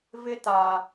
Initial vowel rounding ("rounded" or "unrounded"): unrounded